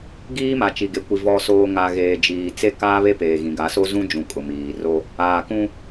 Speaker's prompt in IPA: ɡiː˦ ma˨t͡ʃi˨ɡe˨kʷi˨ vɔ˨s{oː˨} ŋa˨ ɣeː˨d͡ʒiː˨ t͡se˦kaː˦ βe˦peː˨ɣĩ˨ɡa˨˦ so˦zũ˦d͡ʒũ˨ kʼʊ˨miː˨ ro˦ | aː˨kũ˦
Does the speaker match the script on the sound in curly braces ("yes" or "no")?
yes